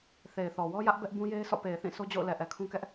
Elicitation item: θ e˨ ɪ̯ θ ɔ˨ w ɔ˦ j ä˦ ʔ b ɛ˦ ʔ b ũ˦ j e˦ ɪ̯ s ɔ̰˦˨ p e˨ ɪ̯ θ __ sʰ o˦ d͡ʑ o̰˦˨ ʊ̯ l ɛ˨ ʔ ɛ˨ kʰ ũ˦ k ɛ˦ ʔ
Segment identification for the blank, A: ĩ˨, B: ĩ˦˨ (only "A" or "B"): B